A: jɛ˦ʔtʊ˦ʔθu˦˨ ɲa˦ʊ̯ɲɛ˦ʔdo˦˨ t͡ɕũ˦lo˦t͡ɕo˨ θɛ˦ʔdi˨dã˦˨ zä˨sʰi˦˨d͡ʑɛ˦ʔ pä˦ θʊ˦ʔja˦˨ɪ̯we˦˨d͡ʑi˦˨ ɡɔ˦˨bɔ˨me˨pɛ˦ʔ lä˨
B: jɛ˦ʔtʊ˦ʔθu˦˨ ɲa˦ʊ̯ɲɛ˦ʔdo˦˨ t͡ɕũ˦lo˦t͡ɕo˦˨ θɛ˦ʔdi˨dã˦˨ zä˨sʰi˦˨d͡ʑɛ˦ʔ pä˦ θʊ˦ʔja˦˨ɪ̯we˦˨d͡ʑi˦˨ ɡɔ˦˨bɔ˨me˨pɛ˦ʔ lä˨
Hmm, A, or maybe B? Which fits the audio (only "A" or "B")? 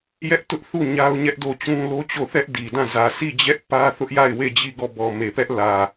B